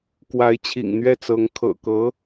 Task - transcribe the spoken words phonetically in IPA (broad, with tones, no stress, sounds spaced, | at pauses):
k w a˧˥ ɪ̯ t͡ɕʰ ḭ˨˩ ŋ n̪ ɥ ɛ˥˩ t͡s ɤ˧˥ ŋ kʰ ɤ̰˨˩ k ɤ˧˥